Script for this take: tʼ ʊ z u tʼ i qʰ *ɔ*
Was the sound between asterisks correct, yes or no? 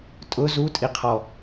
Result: yes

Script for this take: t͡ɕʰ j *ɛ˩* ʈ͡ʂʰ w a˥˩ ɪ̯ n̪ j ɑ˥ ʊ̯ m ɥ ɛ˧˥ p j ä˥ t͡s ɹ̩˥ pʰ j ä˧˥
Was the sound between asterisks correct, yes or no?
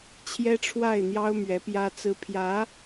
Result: no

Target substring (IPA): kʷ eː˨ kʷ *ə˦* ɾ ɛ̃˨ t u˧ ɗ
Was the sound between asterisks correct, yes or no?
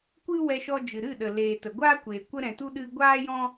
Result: no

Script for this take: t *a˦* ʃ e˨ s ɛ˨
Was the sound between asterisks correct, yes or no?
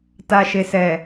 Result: no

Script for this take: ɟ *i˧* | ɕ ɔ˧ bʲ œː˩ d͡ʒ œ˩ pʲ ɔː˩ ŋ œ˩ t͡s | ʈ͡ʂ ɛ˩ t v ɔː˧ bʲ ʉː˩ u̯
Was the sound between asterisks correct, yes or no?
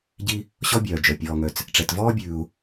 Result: yes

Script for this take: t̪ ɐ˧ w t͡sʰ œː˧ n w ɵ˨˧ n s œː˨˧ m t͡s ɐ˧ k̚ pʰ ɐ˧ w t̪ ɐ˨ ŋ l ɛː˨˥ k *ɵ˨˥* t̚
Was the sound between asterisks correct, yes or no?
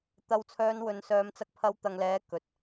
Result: no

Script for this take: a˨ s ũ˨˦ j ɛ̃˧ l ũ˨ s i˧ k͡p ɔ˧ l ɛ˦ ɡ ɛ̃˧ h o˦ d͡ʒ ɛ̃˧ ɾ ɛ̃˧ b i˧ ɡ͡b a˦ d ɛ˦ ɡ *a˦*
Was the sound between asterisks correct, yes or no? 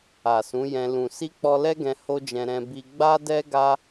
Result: yes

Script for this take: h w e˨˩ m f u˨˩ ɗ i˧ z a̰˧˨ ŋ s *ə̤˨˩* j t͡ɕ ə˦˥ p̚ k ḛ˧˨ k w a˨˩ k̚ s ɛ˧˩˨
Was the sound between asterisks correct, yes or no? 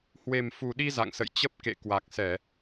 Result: no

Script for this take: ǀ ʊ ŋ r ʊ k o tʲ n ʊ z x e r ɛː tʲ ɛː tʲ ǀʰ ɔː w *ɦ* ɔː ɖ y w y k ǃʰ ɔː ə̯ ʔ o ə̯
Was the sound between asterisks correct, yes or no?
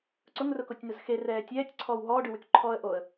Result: yes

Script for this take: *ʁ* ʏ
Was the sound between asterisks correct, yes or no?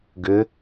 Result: no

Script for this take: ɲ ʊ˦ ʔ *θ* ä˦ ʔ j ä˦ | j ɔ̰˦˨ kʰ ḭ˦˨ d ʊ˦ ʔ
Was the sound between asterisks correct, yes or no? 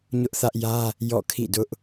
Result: yes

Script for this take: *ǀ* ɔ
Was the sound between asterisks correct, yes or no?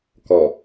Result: no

